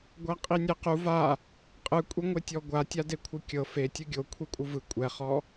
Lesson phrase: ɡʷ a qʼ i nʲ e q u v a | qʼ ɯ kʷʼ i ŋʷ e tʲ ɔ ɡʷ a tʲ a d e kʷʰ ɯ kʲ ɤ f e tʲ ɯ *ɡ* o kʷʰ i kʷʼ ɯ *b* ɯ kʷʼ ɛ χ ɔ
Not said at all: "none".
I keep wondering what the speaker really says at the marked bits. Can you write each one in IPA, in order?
ɡʲ, v

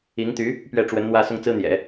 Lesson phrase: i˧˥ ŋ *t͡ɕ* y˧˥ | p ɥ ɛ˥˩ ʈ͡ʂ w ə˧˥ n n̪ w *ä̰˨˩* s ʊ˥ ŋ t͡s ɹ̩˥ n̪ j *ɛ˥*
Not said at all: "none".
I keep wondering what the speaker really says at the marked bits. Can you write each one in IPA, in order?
t̪, ä˥˩, ɛ̰˨˩˦

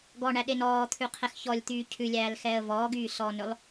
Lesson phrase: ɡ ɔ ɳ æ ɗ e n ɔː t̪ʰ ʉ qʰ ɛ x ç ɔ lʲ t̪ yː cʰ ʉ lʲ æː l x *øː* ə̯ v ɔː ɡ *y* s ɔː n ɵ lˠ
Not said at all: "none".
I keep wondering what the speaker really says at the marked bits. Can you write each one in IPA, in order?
ɛː, yː

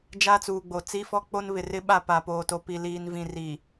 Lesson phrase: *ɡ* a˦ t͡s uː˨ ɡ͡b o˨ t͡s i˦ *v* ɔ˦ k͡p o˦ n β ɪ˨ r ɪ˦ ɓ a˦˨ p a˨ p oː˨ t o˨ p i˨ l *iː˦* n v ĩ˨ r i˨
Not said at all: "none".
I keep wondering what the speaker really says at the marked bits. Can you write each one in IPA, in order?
d͡ʒ, f, iː˨

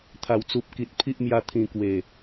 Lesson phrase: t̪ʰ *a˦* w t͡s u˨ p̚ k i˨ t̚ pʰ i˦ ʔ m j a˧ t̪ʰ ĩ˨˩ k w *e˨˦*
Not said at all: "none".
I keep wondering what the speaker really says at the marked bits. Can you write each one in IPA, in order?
a˨˩, e˨˩

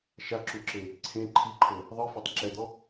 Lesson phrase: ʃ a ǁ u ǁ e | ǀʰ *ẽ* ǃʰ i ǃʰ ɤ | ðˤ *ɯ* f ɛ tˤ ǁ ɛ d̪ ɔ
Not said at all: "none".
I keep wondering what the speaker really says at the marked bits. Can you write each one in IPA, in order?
ẽ, ɯ

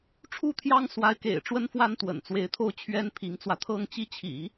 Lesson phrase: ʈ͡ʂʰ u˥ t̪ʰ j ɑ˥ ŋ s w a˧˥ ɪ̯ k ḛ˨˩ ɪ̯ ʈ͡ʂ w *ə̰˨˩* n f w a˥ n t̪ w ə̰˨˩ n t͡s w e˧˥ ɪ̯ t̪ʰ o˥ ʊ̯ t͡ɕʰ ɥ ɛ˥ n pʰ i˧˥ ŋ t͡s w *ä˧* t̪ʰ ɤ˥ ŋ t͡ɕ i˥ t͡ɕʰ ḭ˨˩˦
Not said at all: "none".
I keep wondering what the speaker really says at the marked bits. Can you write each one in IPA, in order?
ə˥, ä˧

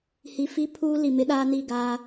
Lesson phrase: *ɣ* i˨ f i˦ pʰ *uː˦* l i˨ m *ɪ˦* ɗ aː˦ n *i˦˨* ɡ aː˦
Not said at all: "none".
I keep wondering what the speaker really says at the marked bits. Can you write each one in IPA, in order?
h, uː˦, ɪ˦, i˦˨

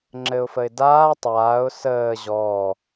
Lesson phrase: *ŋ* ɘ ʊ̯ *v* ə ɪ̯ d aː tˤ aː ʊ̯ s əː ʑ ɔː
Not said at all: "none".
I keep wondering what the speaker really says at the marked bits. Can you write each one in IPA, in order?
ŋ͡ǁ, f

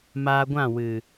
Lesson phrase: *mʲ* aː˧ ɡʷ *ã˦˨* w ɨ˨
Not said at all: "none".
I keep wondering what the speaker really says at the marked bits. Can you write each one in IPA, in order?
m, ã˦˨

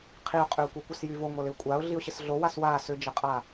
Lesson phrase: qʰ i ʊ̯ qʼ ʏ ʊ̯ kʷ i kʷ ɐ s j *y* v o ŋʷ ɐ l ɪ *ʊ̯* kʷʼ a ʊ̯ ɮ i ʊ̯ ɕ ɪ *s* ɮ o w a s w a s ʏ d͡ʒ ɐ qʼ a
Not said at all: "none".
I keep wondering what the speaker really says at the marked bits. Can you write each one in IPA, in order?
y, ʊ̯, s

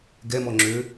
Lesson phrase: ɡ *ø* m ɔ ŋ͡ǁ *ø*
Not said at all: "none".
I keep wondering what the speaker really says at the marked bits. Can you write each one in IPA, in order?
ɛ, ø

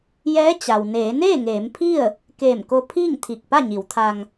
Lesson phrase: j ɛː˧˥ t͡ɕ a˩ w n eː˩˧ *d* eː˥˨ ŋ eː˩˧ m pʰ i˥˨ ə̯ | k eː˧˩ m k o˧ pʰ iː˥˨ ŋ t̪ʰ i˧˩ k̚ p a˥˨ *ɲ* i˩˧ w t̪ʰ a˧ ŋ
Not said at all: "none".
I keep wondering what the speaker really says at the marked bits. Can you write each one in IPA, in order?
n, ɲ

